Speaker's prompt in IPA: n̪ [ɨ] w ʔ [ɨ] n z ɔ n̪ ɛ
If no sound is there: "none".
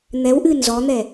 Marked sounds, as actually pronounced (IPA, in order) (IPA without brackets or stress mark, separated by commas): ɛ, ɨ